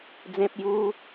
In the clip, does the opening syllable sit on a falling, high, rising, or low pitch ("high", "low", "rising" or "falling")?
low